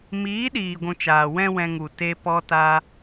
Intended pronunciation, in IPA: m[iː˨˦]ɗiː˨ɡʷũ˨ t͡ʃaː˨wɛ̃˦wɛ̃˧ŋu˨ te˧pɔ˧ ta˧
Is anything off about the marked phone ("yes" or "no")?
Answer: no